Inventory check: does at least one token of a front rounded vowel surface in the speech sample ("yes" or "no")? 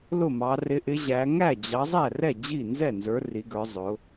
no